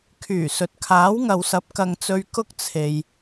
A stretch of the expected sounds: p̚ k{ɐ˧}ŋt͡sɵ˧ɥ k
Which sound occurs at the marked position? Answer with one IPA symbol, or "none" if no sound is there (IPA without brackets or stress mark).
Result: ɐ˧